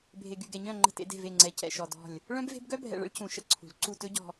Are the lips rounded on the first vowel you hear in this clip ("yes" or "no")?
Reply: no